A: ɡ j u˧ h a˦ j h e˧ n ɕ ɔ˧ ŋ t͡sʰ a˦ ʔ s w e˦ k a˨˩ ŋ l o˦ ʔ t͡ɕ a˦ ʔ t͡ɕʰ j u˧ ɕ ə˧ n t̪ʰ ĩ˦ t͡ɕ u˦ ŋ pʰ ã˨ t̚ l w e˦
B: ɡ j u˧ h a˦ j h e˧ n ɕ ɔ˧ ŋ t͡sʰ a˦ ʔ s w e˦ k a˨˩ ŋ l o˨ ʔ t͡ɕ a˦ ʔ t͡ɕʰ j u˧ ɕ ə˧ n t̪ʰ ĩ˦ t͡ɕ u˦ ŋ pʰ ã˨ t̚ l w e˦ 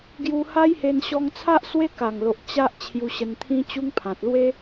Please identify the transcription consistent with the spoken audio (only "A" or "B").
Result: B